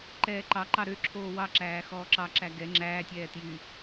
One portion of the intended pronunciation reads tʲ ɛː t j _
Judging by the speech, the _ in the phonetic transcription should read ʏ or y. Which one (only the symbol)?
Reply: y